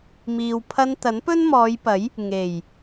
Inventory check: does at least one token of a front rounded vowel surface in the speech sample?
no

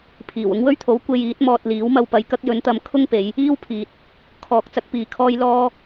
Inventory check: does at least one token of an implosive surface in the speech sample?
no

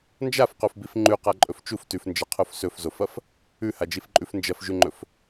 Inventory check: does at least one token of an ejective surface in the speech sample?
yes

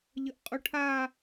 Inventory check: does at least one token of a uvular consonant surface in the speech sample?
yes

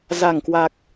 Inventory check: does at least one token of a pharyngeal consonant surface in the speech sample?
no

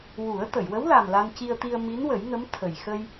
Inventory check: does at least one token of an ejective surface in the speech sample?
no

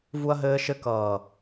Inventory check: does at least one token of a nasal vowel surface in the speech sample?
no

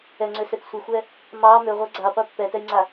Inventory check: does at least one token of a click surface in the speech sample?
yes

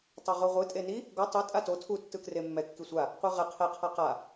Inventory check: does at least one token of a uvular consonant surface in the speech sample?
yes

